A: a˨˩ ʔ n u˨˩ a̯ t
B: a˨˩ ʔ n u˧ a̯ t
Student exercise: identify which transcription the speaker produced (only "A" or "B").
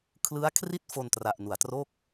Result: A